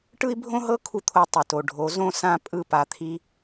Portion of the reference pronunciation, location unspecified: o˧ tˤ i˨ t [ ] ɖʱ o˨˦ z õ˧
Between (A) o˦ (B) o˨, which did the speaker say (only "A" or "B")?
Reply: B